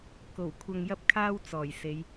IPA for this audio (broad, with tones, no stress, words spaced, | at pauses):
ko˨˩wkʷʰɐ˧ŋjɐ˥p̚kʰaː˥w t͡sɔː˨˩jse˨˧j